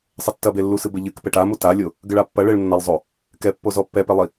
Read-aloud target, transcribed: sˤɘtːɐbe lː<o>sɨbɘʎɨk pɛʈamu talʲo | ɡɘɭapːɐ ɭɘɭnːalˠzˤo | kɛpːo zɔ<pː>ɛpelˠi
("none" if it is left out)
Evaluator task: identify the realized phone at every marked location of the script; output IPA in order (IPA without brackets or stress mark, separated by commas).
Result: u, pː